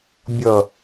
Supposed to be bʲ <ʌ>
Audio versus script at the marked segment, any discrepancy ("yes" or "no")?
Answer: no